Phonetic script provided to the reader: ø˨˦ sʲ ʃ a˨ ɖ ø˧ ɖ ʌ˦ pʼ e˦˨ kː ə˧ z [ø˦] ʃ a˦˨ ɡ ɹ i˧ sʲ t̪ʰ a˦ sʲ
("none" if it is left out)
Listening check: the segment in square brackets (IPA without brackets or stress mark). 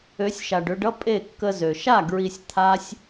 ø˨